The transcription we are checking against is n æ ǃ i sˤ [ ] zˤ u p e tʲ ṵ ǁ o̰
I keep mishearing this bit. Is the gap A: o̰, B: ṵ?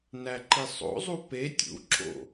A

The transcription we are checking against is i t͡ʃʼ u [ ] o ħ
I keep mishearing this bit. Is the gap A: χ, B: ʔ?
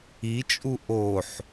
B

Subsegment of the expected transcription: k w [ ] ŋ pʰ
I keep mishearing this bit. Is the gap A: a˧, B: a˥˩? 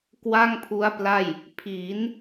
B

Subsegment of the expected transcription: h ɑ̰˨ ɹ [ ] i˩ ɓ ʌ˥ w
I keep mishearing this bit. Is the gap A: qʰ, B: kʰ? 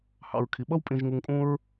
B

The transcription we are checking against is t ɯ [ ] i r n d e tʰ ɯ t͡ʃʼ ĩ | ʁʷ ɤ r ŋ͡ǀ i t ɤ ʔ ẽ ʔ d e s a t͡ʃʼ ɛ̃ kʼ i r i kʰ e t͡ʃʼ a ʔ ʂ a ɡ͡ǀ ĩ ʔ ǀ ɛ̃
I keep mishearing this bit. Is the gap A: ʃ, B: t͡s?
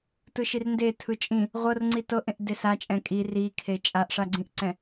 A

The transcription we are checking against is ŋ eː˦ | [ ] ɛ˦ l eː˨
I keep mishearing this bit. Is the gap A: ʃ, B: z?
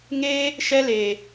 A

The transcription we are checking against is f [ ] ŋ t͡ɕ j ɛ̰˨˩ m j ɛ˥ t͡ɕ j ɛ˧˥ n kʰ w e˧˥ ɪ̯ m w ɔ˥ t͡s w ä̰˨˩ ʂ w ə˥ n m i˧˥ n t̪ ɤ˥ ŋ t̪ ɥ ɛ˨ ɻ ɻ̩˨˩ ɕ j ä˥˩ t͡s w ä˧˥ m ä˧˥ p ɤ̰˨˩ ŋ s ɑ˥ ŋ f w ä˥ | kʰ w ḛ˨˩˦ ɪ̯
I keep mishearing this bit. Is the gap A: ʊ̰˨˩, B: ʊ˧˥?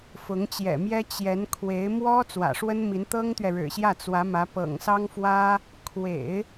B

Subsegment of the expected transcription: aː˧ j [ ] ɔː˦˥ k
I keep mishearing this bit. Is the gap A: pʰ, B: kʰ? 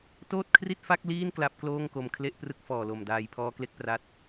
A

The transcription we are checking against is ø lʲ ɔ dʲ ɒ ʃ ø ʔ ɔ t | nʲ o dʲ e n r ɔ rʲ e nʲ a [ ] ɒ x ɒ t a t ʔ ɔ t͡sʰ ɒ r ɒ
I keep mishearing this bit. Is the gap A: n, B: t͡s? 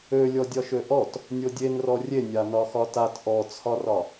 A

